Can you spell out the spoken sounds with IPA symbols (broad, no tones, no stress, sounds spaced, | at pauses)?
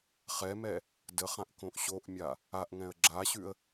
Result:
χ ɛ m ɛ | d ə χ ã ʔ k õ ʔ ɕ o ʔ mʲ a | a ʔ ŋ ɛ̃ ə̯ ɡ͡ǁ a ɕ ʉ ə̯